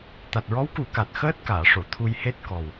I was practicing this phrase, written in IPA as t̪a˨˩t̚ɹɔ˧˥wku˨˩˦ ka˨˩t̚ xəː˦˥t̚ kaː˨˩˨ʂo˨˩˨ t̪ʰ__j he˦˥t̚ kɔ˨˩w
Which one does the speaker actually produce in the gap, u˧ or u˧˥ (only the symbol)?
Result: u˧